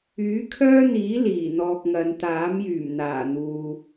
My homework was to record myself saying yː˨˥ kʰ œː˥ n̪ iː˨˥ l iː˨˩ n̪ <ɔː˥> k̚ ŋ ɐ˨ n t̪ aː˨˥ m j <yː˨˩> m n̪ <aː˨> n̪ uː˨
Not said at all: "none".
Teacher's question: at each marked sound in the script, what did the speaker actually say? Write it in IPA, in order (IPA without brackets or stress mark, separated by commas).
ɔː˧, yː˨˩, aː˨˩